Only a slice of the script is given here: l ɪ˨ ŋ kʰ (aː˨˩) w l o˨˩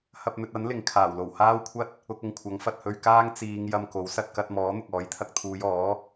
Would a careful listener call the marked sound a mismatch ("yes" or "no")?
no